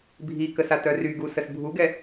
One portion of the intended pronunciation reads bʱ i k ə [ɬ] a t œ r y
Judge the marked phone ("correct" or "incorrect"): incorrect